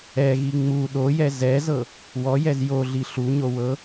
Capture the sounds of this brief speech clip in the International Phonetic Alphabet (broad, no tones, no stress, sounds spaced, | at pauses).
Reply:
ɛ ɣ i ŋ͡m u ɗ o j ɛ z ɛ z ɤ | w ɔ j ɛ z j o ɮ i ɬ u ɲ o w ɤ